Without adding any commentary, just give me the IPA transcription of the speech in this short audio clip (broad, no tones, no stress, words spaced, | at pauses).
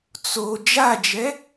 t͡so d͡ʒad͡ʒɛ